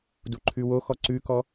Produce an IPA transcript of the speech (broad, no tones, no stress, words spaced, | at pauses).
duǃʰʉwo xɔǀʉkɔ